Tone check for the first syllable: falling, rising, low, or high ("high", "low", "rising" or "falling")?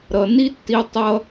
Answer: low